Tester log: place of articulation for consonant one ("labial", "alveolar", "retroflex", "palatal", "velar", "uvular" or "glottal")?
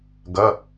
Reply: velar